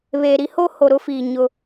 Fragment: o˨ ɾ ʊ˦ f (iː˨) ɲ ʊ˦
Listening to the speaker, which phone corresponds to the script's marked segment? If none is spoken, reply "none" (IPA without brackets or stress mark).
iː˨